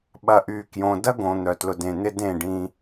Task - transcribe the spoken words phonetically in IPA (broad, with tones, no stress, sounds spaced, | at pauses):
ɓ ɐ˨ ʔ yː˨ k j õ˨ d ɐ˦ ɡ õ˨ n̪ œ˨ t l ʊ˨ d ẽ˨ n̪ ɪ˦ d ẽ˦˨ ɖ ĩ˦